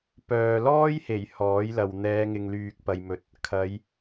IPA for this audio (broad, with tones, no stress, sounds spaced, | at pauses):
p œː˨ l ɔː˥ j h e˨˩ j h ɔː˨˥ j l ɐ˨ w n̪ ɛː˨˧ ŋ ɪ˨ ŋ l yː˨ k̚ p ɐ˧ j m ɵ˧ t̚ | kʰ ɐ˨˧ j